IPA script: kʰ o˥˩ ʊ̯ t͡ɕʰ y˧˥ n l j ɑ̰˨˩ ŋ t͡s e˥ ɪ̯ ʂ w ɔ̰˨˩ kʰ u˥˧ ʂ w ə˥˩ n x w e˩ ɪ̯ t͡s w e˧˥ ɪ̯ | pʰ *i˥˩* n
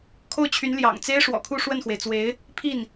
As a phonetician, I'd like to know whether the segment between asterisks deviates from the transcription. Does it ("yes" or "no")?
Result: no